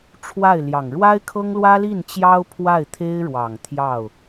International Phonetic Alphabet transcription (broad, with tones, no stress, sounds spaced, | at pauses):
ʈ͡ʂʰ w a˥˩ ɪ̯ l j ɑ˨˩ ŋ ɻ w a˥ ɪ̯ kʰ ɤ˥ ŋ l w ä˥ l i˥˩ n t͡ɕ j ɑ˥ ʊ̯ pʰ w a˥˩ ɪ̯ t̪ʰ e˥ ɪ̯ ɻ w ɑ˨˩ ŋ t̪ʰ j ɑ˥˩ ʊ̯